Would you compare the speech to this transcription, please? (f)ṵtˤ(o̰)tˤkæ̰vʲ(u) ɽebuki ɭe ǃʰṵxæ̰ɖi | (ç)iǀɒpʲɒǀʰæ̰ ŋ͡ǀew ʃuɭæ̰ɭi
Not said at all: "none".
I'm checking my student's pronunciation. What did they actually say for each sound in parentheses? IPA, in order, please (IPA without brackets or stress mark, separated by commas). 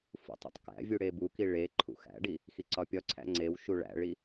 f, ṵ, u, x